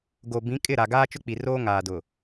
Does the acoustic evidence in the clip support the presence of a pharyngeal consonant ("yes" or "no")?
no